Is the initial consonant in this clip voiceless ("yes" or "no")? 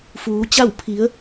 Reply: yes